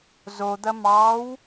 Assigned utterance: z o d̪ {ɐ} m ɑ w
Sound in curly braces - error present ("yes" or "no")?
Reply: no